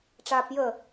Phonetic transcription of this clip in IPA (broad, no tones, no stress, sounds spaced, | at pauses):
ʈ͡ʂ aː p j ə